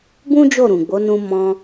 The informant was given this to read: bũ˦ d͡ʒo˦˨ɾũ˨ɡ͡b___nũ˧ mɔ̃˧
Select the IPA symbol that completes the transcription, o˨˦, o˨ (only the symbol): o˨˦